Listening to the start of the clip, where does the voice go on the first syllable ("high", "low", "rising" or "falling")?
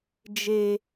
high